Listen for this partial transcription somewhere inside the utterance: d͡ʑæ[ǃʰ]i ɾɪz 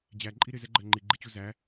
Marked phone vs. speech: incorrect: ǃʼ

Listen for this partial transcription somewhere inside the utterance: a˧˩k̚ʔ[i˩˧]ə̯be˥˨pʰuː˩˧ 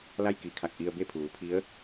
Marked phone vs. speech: incorrect: i˧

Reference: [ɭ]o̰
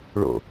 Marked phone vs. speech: correct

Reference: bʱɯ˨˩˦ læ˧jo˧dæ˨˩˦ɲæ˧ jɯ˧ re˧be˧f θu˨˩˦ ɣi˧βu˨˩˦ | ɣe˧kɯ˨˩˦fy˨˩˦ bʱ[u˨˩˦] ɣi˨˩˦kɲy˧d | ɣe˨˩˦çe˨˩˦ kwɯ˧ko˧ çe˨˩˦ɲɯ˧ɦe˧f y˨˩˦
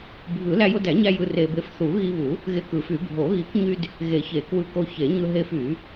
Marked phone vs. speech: incorrect: o˨˩˦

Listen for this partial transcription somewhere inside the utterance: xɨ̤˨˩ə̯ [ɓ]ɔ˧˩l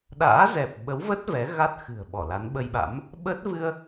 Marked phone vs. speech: correct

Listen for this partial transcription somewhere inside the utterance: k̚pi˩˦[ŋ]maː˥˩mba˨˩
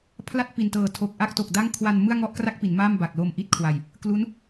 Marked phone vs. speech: incorrect: n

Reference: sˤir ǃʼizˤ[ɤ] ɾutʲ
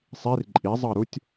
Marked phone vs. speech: correct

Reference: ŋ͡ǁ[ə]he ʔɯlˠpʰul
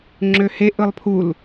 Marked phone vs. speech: incorrect: ø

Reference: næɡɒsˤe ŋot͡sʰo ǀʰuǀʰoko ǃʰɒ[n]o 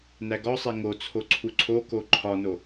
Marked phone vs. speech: correct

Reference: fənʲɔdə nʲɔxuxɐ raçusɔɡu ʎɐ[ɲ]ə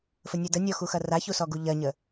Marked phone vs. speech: correct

